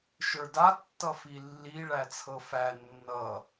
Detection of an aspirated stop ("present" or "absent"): present